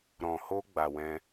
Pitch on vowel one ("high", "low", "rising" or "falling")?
low